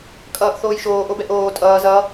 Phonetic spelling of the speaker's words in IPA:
kʼʌːʔθoːjʃoːʔ obɛʔoː tʼʌː zʌ

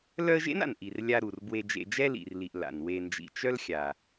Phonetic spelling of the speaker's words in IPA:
lœ˦ə̯ʒḛ˥na̰˩n ʔi˩r lʲa˨ ɾu˩r bwe˨d͡ʒḛ˨d͡ʒɛ˦ lḭ˩rli˩ʔ la̰˩nwe˨ nd͡ʒḭ˩t͡ʃœ˦l xʲa˩

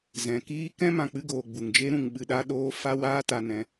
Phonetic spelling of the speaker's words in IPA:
zɛ̃˨kiː˦ kɛ̃˦ mã˨k͡pɨ˧ɡoː˨ ɡ͡bu˨ŋd͡ʒe˦ɾũ˧ŋ ɓɨ˧ɗa˦ɗoː˦ fa˦ waː˦ta˧nɛ̃˧

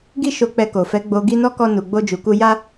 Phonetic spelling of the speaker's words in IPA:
ɡi˦ʃo˧k͡pɛ˧ ko˨fɛ˨˦ɡ͡bo˧ ɡi˦nɔ˦kɔ˦ nu˧ɡ͡bo˦d͡ʒu˧ku˦ ja˦

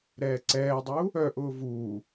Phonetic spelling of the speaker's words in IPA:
ɾɛːǀɛːdˤuː | œʔʊː vuː

